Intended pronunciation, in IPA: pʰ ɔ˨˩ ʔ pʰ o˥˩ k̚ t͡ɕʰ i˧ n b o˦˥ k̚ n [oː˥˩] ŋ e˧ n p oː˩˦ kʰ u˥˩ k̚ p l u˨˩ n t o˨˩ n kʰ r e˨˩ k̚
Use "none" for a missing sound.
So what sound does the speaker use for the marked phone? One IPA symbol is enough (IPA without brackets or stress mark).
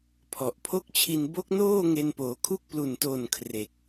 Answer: oː˥˩